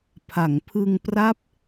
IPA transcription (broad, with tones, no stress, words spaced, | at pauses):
pʰa˩˦ŋpʰɯ˧ŋ pra˦˥p̚